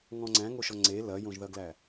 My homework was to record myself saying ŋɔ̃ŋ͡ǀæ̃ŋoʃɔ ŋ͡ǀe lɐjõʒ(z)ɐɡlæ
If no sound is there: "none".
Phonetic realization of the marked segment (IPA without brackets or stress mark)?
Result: ð